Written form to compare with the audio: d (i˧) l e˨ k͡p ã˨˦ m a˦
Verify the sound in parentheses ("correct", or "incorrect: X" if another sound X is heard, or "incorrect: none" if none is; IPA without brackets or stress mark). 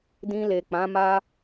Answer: incorrect: ĩ˧